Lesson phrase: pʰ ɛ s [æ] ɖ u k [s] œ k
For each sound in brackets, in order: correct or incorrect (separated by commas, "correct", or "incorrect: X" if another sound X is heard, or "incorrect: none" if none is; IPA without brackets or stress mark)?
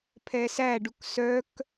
correct, correct